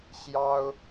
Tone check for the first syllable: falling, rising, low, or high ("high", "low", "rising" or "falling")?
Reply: high